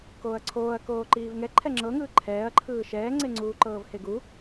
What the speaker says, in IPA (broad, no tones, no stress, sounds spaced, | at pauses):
k oː ɐ̯ ǀʰ oː ɐ̯ k oː ǃ iː v ŋ ɛ ǃʰ ɛ ŋ͡ǁ ɤ ŋ ɯː ǃʰ ɛː ɐ̯ ǃʰ ɯː ʃ ɛː ŋ͡ǀ e ŋ͡ǀ uː ǃ ɤː v h e ɡ u